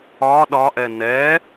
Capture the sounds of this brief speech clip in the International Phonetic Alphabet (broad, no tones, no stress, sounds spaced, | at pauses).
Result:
ɒ ɗ ɒ ʔ ɛ n ɛ